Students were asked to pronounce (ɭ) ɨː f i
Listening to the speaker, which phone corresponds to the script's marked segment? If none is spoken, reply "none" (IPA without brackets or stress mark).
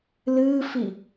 l